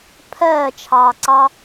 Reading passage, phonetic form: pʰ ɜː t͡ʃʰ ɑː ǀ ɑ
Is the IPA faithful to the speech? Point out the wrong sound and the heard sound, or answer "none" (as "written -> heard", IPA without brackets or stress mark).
none